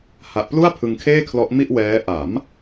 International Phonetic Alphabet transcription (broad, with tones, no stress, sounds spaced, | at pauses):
h a˨˩ ʔ p l u˥˩ a̯ pʰ ɯ˧ ŋ kʰ eː˥˩ kʰ l ɔ˦˥ ʔ m i˥˩ ʔ w ɛː˦˥ ʔ a˩˦ m